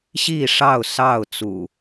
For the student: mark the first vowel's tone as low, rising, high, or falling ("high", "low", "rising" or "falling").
falling